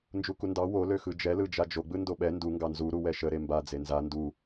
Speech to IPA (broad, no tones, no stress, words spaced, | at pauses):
nd͡ʒukundɑ wo løxɯd͡ʒɛ lɯd͡ʒad͡ʒo ɡ͡bɯndoɓɛ ndu ŋɡɑnzu ɾuwɛʃə ɾemba d͡zenza ndu